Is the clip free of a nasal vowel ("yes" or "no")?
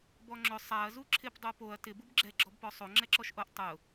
yes